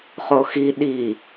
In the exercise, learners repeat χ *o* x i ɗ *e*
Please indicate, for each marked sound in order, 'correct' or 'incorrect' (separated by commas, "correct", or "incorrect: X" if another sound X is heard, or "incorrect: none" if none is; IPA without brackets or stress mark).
correct, incorrect: i